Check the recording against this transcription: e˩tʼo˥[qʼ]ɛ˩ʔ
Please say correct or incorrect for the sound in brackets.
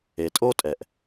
incorrect: tʼ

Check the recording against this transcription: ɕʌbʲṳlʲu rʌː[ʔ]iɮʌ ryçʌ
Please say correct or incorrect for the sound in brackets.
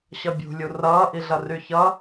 correct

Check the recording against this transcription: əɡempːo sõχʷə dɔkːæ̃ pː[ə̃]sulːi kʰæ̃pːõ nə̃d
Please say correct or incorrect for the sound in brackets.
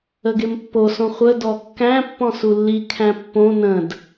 incorrect: ɔ̃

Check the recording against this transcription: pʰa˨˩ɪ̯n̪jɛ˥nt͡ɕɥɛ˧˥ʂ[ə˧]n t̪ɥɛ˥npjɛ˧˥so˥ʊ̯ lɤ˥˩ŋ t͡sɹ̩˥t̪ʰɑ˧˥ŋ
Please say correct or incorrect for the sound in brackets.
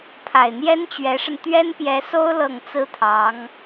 correct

